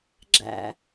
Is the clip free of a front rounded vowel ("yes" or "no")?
yes